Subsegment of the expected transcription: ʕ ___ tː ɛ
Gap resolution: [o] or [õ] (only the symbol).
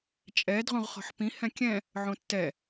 õ